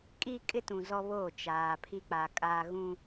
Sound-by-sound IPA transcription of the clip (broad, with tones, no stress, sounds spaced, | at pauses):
kʼ iː˦ kʼ ɪ˦ t ũ˨ z ɔ˦ β oː˦˨ t͡ʃ aː˨ pʰ i˦ k͡p a˨ kʼ aː˦ ɣ ũ˦